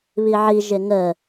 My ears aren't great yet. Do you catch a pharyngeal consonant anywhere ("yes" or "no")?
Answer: yes